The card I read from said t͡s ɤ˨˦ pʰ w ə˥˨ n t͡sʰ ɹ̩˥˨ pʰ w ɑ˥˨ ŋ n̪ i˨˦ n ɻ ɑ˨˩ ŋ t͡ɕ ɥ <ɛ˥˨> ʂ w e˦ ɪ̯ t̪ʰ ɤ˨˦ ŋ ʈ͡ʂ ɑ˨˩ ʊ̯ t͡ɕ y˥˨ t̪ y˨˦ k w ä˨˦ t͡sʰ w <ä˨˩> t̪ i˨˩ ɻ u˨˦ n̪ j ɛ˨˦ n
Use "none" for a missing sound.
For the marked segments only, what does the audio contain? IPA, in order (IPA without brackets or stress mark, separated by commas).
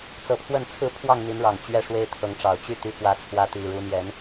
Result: ɛ˥˨, ä˨˦